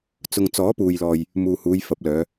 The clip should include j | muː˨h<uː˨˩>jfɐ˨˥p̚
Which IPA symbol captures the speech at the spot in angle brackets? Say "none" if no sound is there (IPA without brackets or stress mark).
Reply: uː˨˧